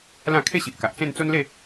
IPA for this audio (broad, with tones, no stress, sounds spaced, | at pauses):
l ã˥˧ kʰ e˥˧ ɕ i˨ ʔ k a˨ ʔ t͡s ẽ˥˧ n t͡s o˦ n l e˥˧